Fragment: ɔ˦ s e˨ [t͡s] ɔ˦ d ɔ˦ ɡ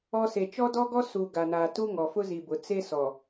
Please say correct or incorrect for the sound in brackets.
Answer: incorrect